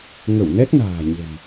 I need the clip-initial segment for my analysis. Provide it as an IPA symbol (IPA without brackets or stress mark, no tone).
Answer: ŋ